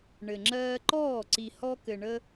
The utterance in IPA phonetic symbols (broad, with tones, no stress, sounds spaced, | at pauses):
ɳ ɘ˨ ŋ͡ǁ ɜː˧ ǃ ɔː˦˨ ǀ i˨ h ɔ˧ k ɘ˨ ɳ ə˧